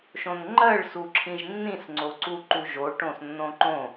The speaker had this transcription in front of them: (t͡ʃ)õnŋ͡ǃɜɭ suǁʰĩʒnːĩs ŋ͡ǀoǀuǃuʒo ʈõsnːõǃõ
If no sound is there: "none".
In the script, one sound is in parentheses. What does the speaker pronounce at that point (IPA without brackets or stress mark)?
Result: ʃ